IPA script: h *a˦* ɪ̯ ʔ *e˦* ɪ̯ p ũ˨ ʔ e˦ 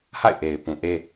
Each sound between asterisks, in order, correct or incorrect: incorrect, incorrect

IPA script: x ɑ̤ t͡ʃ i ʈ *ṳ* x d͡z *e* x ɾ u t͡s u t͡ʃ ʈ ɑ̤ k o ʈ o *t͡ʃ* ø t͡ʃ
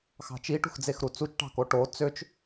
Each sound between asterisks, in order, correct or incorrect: correct, correct, incorrect

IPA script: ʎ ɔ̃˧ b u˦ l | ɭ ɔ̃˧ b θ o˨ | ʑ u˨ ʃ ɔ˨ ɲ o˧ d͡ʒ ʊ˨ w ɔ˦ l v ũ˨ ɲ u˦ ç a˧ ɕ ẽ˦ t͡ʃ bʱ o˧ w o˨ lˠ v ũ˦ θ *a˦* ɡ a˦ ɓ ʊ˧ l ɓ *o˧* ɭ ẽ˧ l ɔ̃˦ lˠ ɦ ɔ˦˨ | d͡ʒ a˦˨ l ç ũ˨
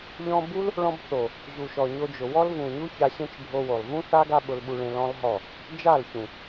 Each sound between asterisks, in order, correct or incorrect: correct, incorrect

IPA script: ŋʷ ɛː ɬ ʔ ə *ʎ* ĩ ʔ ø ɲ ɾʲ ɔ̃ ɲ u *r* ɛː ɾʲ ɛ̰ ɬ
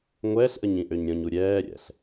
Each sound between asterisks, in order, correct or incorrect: incorrect, incorrect

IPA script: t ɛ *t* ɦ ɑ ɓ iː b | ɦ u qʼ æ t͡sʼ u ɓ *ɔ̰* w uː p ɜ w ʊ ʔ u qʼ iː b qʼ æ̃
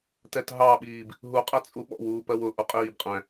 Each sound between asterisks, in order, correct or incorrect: correct, correct

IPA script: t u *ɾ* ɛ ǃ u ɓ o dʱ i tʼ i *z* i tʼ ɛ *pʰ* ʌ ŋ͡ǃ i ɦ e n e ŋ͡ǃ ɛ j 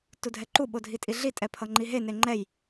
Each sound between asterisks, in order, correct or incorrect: incorrect, incorrect, correct

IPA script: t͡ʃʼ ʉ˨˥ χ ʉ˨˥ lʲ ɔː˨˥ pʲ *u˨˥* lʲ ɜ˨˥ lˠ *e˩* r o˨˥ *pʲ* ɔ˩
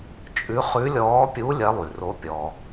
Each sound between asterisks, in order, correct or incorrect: correct, incorrect, correct

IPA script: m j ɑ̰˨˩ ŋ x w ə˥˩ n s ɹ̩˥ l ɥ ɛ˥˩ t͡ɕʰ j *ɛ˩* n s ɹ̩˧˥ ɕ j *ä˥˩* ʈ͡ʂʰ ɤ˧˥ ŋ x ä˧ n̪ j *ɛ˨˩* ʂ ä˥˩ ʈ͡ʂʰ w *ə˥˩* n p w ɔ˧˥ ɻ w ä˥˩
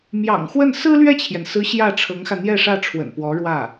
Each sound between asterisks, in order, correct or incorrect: correct, correct, incorrect, incorrect

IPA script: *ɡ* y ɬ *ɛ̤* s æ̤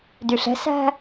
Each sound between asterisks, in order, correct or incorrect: incorrect, correct

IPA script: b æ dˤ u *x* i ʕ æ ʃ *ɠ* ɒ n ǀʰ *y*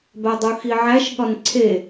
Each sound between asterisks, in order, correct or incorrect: correct, correct, incorrect

